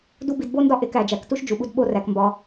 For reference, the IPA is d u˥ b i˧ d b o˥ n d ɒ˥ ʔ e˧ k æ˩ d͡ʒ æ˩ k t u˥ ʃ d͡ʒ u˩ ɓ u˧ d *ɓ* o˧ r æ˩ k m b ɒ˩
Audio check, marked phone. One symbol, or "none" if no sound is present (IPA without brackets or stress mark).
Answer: ɓ